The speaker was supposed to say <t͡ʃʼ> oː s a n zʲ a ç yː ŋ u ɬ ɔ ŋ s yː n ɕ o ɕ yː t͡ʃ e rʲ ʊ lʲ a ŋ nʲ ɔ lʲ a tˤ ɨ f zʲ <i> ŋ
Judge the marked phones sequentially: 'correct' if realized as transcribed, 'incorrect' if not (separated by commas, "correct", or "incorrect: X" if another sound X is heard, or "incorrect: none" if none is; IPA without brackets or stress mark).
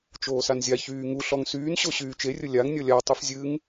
incorrect: t͡ʃ, incorrect: ɨ